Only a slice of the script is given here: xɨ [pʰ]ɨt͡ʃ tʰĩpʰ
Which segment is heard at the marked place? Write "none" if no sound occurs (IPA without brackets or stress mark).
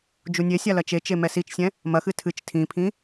tʰ